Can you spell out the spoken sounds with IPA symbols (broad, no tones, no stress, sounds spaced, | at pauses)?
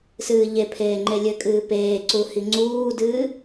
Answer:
s ɨː ʎ e pʰ eː ŋ͡ǃ e lʲ ɘ kʼ ɨː p eː ǀ u h i ŋ͡ǀ uː d ɨː